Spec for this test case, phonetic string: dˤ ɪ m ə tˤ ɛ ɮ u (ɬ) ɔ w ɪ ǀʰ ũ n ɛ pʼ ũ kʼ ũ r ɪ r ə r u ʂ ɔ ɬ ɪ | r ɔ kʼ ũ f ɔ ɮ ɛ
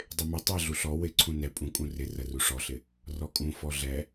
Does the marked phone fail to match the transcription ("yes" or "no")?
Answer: no